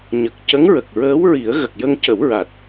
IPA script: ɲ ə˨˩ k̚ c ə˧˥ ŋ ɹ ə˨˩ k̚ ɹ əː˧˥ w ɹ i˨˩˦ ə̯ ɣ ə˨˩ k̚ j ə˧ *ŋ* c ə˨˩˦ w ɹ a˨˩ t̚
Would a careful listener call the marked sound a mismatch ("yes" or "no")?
no